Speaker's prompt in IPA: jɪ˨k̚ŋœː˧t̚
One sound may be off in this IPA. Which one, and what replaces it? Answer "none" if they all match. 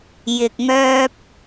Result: t̚ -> p̚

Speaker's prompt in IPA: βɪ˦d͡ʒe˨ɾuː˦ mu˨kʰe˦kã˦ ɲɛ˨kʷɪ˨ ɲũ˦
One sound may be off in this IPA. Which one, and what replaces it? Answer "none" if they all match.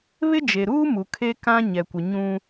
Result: none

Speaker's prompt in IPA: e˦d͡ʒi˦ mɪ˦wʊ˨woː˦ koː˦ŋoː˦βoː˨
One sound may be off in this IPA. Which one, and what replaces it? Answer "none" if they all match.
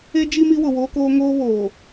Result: ɪ˦ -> i˦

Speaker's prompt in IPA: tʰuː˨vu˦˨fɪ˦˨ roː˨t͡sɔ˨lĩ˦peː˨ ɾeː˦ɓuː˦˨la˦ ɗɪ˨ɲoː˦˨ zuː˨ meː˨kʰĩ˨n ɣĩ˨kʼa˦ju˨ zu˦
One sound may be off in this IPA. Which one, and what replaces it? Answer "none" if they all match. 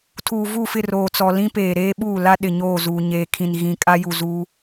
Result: m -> ɲ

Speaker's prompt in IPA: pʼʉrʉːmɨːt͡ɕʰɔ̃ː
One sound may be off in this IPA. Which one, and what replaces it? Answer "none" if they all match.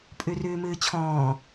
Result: none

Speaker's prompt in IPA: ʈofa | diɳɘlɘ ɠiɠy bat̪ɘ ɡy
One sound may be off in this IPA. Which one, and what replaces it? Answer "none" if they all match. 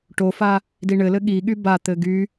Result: none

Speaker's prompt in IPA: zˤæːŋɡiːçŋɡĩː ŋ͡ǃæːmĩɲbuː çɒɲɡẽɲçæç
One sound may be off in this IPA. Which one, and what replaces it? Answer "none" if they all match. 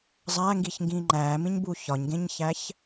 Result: none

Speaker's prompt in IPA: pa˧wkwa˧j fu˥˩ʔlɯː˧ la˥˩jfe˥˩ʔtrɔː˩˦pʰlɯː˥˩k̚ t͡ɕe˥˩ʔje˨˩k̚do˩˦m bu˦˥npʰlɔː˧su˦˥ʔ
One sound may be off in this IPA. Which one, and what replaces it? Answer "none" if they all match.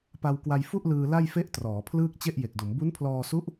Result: none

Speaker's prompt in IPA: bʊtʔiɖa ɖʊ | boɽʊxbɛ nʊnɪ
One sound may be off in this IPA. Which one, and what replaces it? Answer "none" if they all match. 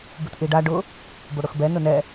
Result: ɪ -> ɛ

